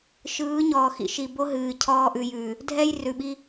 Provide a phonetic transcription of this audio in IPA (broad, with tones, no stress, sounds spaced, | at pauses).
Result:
ʃ ɯː˨˦ ɲ ɔː˨ x ḭ˦ ʃ i˨ b o˦ ɦ ɨː˨ cʰ ɔː˦ ʔ ʉ˨ j ʉː˨ | dʱ ɛ˦ j r ʉ˨ ɓ i˦